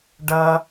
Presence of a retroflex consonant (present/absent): present